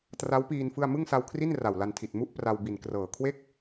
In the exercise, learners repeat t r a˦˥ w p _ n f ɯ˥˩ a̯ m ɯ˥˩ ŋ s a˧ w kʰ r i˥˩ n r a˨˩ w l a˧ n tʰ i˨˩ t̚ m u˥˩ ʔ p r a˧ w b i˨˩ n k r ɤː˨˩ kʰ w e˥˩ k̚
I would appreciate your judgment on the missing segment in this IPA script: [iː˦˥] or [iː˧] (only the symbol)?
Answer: iː˧